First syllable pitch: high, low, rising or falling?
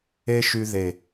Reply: high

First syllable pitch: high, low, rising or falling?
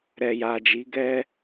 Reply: low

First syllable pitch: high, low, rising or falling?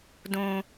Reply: high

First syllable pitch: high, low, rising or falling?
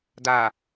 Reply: low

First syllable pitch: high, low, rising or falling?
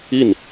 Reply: falling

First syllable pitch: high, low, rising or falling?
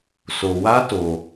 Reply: low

